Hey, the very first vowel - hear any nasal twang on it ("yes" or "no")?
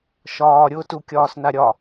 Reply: no